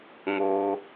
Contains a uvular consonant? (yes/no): no